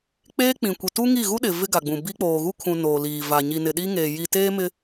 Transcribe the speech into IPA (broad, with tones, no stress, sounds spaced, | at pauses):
k͡p eː˦ k͡p ĩ˨ kʷ i˨ t u˦ ŋ i˦˨ ɣ u˦ ɗ ɪ˨ v ɪ˦ ɡ a˨ ɡ͡b ũ˨ b i˦ k͡p oː˨ ɣ u˦ kʰ ũ˨ n oː˨ l iː˨ v a˨ ɲ i˨ n ɪ˨ ɗ i˦ ŋ eː˨ j i˨ t eː˦ m ɪ˦